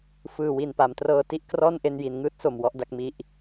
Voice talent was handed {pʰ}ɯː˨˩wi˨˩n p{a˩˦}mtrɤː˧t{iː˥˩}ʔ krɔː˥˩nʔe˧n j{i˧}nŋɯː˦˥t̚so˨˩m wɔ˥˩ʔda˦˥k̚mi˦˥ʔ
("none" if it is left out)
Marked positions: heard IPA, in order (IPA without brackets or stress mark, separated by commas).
f, a˩˦, i˥˩, i˩˦